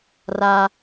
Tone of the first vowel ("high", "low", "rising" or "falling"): high